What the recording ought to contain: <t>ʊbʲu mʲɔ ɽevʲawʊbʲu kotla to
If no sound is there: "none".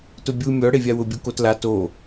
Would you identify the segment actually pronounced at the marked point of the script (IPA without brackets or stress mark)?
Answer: t